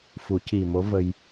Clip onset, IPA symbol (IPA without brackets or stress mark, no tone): f